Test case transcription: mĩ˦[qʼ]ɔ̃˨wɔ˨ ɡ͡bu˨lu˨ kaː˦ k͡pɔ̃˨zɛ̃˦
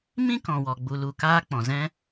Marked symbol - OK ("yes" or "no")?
no